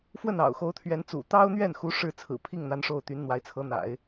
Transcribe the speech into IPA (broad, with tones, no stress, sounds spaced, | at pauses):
f w ə˥˩ n ɑ̰˨˩ ʊ̯ x o˧˥ ʊ̯ t̪ʰ ɥ ɛ˧˥ n t͡s ṵ˨˩ t̪ ɑ˥ ʊ̯ n̪ ɥ ɛ˥˩ n x u˧˥ ʂ ɻ̩˥˩ t͡sʰ ɹ̩˨˩ pʰ i˥˩ ŋ n̪ a˧˥ n ʂ o˥˩ ʊ̯ t̪ y˧˥ n n̪ w a˧˥ ɪ̯ t͡sʰ ɤ˧˥ n̪ a̰˨˩˦ ɪ̯